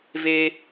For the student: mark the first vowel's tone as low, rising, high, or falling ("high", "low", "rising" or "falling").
high